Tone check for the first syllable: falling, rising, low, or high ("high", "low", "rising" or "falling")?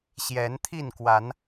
rising